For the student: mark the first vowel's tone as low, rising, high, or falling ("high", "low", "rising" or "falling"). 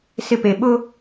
high